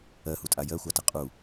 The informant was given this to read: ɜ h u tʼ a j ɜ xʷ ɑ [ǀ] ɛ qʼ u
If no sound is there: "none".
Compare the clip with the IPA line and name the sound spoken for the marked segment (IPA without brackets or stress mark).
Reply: t